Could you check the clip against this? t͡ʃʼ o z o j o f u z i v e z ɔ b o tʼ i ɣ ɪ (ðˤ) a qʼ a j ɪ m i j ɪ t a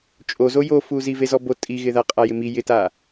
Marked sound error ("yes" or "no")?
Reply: yes